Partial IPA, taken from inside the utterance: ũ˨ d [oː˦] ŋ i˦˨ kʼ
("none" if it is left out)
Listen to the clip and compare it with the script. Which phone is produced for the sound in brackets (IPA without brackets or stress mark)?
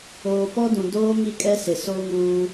oː˦